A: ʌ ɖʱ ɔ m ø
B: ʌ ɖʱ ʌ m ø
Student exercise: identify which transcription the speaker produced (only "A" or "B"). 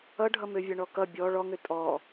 B